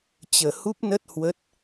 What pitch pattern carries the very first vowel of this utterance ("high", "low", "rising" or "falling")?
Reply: low